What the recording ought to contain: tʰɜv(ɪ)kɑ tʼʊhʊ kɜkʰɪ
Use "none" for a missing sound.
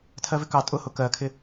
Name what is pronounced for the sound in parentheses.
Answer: ɪ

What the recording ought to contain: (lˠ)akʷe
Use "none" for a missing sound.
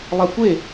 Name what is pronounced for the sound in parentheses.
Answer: lˠ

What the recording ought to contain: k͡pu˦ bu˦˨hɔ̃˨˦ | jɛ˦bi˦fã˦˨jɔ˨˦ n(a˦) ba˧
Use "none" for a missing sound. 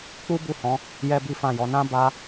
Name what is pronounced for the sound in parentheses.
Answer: ã˦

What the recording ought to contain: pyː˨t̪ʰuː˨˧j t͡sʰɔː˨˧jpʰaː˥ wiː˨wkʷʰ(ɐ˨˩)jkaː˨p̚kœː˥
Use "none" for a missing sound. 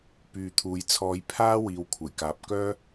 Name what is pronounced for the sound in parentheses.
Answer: ɐ˨˩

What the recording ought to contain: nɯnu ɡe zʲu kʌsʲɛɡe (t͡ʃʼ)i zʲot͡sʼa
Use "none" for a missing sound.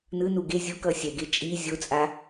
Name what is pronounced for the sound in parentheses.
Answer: t͡ʃʼ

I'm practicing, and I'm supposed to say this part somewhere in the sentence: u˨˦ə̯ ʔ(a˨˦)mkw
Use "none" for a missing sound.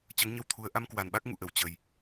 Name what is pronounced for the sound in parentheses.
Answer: a˧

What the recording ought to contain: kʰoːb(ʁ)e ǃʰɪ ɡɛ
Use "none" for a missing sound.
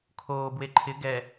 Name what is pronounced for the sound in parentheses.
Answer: w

